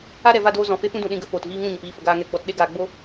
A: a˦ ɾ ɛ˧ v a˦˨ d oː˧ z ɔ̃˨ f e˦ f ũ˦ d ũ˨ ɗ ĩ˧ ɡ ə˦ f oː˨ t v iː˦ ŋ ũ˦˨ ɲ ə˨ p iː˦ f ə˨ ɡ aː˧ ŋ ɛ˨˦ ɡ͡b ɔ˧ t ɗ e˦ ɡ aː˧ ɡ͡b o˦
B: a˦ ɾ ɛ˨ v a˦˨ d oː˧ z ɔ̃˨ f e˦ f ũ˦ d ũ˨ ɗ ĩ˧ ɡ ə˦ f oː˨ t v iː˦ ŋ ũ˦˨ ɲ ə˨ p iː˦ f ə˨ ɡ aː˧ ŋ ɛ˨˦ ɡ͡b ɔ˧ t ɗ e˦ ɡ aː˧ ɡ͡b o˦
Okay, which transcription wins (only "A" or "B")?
B